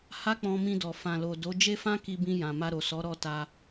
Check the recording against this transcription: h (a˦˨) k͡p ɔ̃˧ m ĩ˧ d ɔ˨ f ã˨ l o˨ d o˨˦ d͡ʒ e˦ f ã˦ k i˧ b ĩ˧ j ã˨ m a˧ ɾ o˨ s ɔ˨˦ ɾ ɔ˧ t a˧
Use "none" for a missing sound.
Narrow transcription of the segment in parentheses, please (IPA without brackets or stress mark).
a˦